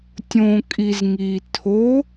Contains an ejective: yes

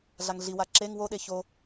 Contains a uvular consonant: no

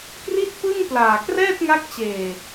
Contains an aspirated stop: no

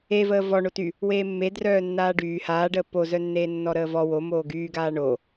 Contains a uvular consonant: no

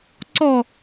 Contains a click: yes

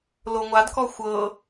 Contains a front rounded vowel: no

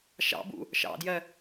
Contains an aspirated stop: no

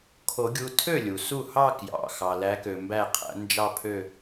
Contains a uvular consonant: yes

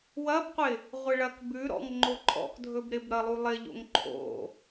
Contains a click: yes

